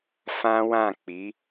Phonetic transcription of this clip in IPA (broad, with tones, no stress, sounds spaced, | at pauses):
f ã˦ w ã˦˨ k͡p i˨˦